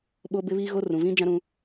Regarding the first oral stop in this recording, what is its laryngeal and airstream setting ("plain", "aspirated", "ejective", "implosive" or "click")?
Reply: implosive